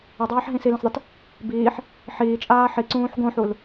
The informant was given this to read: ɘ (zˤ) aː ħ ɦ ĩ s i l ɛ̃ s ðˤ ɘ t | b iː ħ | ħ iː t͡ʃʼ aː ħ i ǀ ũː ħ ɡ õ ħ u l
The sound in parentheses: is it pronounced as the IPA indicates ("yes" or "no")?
no